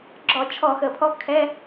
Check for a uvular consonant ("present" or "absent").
absent